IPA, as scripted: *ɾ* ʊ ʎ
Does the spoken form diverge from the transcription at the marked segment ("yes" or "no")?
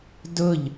yes